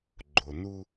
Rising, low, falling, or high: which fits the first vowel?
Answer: low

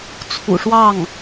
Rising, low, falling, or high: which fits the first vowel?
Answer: low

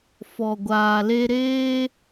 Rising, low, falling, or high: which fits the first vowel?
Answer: low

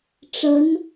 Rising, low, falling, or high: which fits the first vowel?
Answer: rising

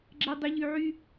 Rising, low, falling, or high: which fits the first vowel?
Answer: low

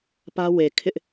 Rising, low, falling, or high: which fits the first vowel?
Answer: high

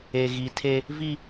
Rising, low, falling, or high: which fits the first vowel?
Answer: low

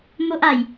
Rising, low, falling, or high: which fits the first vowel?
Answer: high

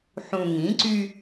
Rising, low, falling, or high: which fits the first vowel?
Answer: low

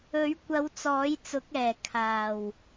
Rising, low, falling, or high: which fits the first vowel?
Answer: rising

